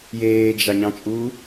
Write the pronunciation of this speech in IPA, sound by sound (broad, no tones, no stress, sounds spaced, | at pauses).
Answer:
j eː d͡ʒ ɑ ɲ ɑ̃ t͡ʃʼ uː